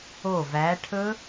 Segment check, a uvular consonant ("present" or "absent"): absent